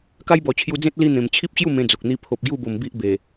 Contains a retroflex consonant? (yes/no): no